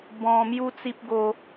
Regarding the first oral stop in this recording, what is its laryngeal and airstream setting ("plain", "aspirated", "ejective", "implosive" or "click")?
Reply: plain